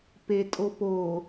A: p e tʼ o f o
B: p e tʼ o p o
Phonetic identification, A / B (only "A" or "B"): B